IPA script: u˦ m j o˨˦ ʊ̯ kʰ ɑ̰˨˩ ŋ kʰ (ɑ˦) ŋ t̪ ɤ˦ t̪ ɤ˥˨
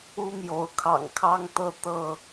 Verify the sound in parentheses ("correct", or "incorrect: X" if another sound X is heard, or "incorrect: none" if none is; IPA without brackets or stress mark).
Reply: correct